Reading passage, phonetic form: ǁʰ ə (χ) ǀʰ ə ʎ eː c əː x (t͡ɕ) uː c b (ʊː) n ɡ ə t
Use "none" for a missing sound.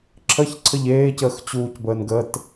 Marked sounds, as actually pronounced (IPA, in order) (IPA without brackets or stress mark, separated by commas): ç, t͡ɕ, əː